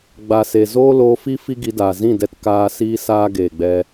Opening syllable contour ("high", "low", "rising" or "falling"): low